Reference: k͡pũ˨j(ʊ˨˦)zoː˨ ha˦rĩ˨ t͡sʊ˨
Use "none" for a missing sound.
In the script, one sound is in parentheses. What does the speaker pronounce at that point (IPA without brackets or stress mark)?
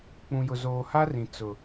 ʊ˨